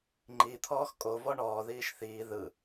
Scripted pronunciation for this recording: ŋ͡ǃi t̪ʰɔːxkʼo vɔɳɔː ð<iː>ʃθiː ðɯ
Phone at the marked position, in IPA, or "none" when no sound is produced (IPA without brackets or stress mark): iː